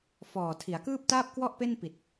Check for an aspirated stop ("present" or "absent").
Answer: present